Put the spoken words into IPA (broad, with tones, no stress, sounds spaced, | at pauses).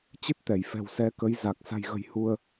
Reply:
t͡ɕ ɨ˦˥ t̚ t̪ ɛ˧˩ j f ɛ̤˨˩ w s ɛ˨˦ k ə˨˦ j z a˨˩ k̚ s a̤˨˩ j ɣ ə̤˨˩ j h u˧ ə̯